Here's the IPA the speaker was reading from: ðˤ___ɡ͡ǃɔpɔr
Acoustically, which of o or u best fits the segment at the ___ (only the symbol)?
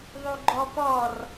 u